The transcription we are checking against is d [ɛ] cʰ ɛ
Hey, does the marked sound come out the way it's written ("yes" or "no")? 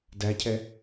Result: no